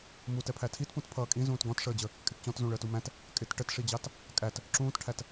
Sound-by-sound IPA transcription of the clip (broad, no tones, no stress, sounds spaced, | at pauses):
m u t ɛ pʰ æ tʰ i t p ũ t pʰ ʌː kʼ ĩ z ũː t ɡ ɔ̃ t ʂ əː d͡ʑ ə | kʼ ɪ t t͡ɕ ɔ̃ t z ũ ɭ əː t u m æ̃ t | kʼ ɪ t ʈ ə t ʂ i d͡ʑ ɑ t | kʼ æ t | ǁ ũː t ʈʰ æ t